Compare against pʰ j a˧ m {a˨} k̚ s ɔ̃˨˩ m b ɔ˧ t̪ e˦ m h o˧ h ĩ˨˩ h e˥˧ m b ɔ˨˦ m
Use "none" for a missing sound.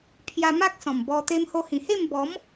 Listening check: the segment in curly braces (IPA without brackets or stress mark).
a˦